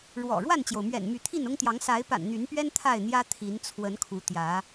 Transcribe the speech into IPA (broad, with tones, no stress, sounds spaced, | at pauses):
ɻ w ɔ̰˨˩ ɻ w a˥˨ n t͡ɕ j o˩ ʊ̯ m ɥ ɛ̰˨˩ n m y˨˦ t̪ʰ i˥˨ n ʊ˦ ŋ t̪ j ɑ˨˦ ŋ s a˨˦ ɪ̯ p a̰˨˩ n n̪ y˨˦ n p ɥ ɛ˦ n t̪ʰ a˥˨ ɪ̯ n̪ j ä˦ t̪ʰ i˨˦ n t͡sʰ w ə˨˦ n kʰ u˨˦ t̪ j ä˨˦